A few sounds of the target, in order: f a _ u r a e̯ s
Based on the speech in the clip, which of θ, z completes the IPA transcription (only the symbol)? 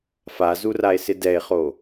z